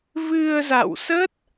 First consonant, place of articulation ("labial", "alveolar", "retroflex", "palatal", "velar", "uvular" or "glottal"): labial